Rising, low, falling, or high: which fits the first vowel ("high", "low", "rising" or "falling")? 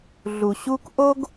low